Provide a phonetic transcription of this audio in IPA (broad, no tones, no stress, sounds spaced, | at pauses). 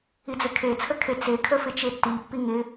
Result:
i d͡z ɘ kʰ e t͡sʰ ə kʰ e t͡s e kʰ ə f ɪ t͡ʃ e tː i pː i ŋ ɪ